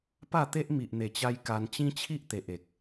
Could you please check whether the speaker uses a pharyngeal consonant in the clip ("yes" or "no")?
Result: no